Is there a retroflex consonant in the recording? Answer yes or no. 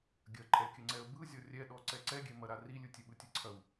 no